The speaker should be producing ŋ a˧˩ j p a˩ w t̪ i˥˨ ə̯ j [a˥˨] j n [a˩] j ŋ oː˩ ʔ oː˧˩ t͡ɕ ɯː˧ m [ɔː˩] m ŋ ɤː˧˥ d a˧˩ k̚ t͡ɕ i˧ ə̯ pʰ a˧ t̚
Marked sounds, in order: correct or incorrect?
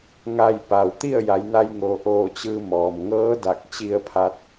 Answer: incorrect, incorrect, correct

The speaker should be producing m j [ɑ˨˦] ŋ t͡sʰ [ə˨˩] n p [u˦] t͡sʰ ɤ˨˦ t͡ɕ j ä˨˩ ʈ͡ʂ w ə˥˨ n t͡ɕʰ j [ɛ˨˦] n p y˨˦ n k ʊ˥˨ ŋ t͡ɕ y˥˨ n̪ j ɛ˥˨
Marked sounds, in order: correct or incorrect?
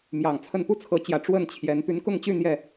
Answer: incorrect, incorrect, correct, correct

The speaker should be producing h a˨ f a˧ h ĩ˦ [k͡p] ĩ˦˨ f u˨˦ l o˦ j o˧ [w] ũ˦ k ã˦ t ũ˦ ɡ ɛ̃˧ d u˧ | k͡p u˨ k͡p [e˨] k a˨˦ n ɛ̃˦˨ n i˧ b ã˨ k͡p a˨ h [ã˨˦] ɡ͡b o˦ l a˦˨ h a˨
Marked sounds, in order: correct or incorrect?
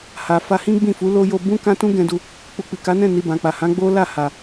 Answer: incorrect, incorrect, incorrect, correct

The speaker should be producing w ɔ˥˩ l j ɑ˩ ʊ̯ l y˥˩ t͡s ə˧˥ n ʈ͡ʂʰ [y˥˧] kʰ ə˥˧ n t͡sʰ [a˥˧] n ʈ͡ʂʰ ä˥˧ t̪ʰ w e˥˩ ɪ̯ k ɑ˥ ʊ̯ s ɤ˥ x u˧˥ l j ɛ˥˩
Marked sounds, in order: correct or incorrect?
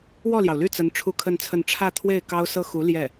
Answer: incorrect, incorrect

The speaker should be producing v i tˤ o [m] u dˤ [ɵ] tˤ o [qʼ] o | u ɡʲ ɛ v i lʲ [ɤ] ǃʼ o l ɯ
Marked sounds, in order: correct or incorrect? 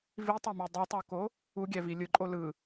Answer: correct, incorrect, incorrect, incorrect

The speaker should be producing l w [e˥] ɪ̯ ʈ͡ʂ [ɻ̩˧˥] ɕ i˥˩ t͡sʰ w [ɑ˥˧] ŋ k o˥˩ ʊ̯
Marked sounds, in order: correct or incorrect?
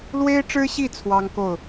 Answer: correct, incorrect, incorrect

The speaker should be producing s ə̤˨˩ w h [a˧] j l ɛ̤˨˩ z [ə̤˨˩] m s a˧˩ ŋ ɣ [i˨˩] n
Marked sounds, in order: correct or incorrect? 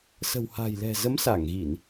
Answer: incorrect, incorrect, incorrect

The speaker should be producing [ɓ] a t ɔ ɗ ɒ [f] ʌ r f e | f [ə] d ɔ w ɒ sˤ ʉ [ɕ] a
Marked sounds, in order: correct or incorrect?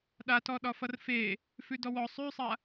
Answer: incorrect, correct, incorrect, incorrect

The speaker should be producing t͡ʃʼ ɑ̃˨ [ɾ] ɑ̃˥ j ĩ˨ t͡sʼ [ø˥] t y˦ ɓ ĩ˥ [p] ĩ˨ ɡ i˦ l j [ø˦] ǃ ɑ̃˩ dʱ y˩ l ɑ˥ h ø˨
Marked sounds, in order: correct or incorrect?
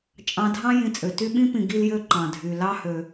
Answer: incorrect, incorrect, correct, correct

